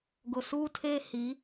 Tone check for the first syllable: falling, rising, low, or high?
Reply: low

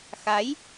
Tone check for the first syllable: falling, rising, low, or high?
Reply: rising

